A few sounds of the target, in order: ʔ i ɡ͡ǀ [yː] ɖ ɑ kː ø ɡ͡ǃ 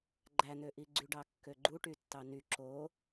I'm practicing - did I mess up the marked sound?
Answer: yes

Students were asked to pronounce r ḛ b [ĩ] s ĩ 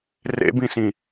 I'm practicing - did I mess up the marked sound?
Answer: no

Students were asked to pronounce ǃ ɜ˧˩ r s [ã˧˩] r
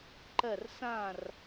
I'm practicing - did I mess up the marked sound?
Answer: no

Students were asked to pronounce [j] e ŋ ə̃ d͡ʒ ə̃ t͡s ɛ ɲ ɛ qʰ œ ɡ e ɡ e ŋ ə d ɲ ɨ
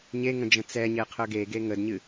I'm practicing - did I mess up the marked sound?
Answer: yes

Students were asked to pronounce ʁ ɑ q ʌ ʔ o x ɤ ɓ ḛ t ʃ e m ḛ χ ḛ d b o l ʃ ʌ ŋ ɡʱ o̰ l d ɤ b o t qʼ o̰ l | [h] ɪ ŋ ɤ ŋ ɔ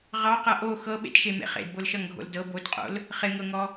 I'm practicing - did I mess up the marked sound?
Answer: yes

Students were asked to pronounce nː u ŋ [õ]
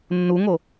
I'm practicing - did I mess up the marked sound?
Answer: yes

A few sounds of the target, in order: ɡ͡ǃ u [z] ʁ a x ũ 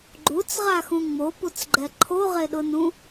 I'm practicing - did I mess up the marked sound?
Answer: yes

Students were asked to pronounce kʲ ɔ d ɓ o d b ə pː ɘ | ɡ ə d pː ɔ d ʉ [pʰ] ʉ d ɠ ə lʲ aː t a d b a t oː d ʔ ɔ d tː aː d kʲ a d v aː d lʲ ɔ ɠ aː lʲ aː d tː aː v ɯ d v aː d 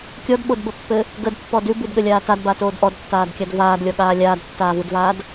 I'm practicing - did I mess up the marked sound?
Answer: yes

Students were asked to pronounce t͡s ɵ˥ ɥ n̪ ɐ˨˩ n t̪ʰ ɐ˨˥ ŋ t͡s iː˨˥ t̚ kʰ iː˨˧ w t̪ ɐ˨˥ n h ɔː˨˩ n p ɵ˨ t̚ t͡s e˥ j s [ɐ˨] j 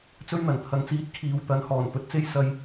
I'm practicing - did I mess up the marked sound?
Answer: yes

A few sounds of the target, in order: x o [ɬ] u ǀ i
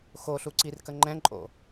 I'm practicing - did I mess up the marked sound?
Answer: no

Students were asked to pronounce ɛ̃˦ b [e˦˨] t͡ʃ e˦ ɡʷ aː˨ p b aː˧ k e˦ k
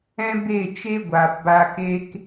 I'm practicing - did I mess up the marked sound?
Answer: no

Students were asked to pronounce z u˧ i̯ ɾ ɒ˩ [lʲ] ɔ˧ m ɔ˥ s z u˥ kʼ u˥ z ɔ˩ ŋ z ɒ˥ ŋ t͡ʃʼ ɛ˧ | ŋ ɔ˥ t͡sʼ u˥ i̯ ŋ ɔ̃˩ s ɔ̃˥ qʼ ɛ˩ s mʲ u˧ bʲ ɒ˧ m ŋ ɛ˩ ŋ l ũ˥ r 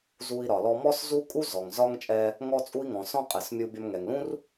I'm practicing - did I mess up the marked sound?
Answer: yes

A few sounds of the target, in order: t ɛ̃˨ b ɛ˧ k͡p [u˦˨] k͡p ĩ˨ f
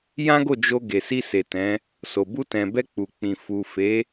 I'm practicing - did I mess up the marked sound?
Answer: yes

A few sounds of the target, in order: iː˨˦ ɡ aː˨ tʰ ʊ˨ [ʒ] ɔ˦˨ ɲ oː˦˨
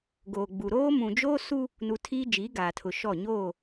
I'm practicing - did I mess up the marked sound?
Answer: yes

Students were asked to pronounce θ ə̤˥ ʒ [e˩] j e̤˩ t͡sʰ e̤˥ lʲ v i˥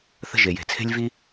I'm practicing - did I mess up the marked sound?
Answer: no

